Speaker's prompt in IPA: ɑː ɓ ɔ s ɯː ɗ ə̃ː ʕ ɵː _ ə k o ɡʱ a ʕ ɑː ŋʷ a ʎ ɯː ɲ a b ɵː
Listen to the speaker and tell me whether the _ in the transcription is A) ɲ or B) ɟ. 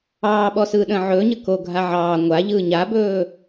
A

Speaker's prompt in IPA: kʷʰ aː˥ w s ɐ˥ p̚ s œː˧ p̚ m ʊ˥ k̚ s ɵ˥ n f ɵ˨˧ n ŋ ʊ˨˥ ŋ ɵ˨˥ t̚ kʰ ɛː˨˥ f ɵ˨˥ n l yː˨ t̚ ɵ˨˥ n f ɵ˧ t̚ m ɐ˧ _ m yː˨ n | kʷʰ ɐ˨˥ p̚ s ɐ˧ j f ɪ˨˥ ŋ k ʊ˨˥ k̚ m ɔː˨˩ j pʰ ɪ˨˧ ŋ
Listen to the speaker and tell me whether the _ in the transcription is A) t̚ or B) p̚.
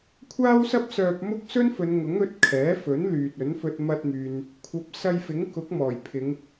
A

